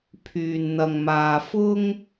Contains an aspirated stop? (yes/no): yes